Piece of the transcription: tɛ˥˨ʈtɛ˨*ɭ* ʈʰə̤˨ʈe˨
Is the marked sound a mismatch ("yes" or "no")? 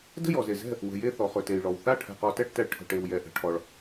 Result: no